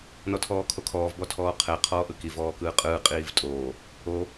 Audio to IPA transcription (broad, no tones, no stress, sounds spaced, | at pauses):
n ɔ tʰ ɔː kʰ o kʰ ɔː v b ɔ tʰ ɔː qʰ ɛ qʰ ɔː ʔ ɯ k i v ɔː k ɯː qʼ ɯː qʼ iː v tʼ oː | o